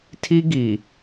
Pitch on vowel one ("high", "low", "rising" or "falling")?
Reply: high